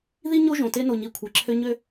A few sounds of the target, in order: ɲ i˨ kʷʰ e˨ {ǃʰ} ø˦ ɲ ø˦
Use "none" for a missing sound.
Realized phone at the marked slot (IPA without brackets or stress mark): ǁʰ